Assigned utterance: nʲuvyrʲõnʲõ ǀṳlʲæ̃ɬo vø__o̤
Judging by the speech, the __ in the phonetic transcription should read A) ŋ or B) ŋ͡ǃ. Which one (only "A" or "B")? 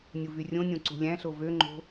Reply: B